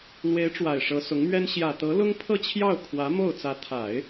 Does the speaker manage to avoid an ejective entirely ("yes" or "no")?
yes